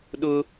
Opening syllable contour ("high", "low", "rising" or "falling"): high